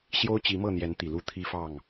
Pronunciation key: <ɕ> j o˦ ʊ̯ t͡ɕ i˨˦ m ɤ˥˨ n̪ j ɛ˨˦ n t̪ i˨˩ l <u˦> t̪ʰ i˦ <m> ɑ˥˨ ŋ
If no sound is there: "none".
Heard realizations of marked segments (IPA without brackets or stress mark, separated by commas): ɕ, u˦, f